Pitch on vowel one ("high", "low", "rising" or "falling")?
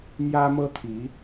high